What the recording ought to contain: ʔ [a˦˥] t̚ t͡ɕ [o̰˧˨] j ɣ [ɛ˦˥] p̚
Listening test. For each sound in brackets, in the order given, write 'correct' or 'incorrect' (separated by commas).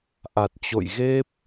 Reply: incorrect, correct, incorrect